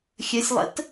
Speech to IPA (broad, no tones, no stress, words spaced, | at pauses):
xʲəsʲlˠə̰t